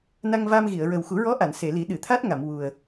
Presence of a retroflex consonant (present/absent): absent